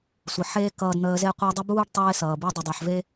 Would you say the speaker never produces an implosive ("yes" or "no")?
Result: yes